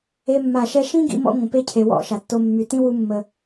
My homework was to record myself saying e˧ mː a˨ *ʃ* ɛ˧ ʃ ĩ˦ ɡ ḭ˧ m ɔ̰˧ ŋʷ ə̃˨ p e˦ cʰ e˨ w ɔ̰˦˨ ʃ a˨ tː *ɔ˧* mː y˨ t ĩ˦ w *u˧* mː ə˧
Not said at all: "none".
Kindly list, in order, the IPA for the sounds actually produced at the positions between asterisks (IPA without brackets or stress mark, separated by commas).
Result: ʃ, o˧, u˧